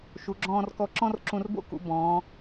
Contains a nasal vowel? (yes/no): yes